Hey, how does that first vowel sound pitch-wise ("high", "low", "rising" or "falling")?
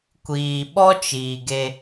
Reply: low